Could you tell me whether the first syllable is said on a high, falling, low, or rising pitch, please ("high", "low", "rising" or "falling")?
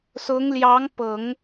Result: rising